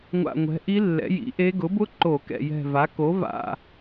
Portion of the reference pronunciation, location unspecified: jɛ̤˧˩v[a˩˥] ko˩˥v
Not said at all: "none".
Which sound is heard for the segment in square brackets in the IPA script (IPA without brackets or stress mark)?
a˩˥